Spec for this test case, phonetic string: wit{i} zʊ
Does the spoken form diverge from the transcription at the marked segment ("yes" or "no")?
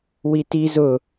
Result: no